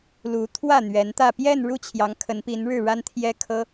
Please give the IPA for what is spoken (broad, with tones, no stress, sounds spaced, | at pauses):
l u˧˥ t̪ʰ w ä˥˩ n̪ ɥ ɛ˧˥ n t̪ ä˥˧ p j ɛ˥˧ n ɻ u˥˩ t͡ɕʰ j ɑ˧˥ ŋ kʰ ə˧˥ n p i˧˥ n ɻ ɻ̩˥˩ ɻ a˥ n t̪ʰ j ɛ˥ kʰ ɤ˥